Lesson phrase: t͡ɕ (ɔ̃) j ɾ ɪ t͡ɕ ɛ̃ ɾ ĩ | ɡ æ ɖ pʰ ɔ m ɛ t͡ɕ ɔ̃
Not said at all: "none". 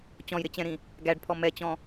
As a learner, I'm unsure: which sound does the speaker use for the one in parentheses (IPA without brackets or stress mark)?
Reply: ɔ̃